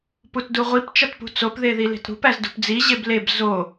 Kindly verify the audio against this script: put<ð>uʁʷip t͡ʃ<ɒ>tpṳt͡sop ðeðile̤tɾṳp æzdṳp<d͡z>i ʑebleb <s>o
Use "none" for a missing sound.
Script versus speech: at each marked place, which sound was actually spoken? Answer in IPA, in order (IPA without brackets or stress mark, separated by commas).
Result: d, ɒ, d͡z, z